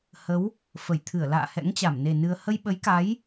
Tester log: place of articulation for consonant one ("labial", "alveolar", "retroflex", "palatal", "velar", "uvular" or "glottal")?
glottal